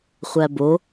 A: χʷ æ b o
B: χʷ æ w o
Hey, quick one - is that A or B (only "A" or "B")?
A